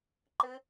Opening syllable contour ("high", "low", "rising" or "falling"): high